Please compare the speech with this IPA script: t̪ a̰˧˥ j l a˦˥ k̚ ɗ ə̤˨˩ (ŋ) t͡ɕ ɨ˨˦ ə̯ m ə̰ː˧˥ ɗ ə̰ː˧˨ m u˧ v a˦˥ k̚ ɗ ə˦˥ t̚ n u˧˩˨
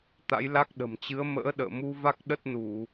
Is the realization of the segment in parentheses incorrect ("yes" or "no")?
yes